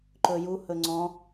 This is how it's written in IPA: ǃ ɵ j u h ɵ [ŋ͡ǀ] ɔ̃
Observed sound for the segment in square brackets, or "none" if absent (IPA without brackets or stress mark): ŋ͡ǀ